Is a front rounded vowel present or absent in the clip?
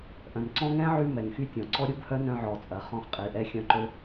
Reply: present